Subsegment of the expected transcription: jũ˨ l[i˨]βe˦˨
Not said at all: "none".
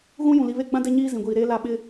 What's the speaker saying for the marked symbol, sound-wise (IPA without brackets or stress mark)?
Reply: i˨